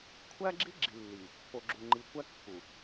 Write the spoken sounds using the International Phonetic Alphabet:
kʷʰæ˦ɡ͡ǁi˦ ɡ͡ǁi˨lːi˨ | po˨ɡ͡ǁu˨ ŋ͡ǃi˨kʷæ˦ kːu˨

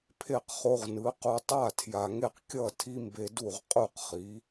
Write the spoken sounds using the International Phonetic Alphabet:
pʰe˥˩qχo˧ʁnɯ˩˥qu˧ tˤa˥˩tʰja˩ŋe˥˩qkʲʌ˥˩ tʰi˥mbe˧du˥˩ʁ qʼu˥˩qχi˩˥

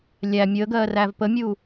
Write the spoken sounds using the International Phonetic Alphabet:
lʲæ mʲəːɡɜː rævpəmʲu

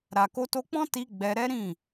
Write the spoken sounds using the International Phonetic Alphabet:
ɾa˨ko˧to˧k͡pɔ̃˦ ti˧ ɡ͡bɛ˧ɾɛ˦ ɾĩ˦˨

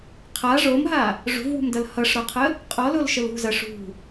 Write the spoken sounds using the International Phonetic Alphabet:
qʰa ʐomɦa | ʐṳvwṳmdʌl hʌʂɾɔqʰə | qʼɔlolʃəl ṳzɐ ʂṳ

